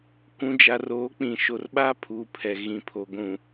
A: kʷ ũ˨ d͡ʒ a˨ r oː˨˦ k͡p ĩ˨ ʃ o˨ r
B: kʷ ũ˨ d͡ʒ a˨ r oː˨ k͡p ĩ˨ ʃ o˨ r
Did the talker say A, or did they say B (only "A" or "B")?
A